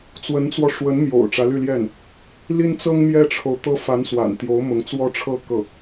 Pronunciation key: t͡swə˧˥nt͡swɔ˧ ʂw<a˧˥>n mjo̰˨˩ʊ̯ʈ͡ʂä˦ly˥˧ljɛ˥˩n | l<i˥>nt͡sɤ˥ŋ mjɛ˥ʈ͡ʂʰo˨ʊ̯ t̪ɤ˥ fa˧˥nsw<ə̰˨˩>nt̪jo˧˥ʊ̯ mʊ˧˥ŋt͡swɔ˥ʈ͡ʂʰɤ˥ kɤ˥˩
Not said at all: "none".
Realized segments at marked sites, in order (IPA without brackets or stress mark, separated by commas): ə˧˥, i˥, a̰˨˩